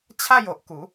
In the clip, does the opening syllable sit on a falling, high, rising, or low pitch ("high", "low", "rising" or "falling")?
falling